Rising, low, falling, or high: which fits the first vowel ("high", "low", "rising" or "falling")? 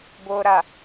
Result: low